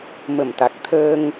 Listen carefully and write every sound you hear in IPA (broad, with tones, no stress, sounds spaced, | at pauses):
m ə˧˩ m t̪ a˨˩ k̚ t̪ʰ əː˧ ŋ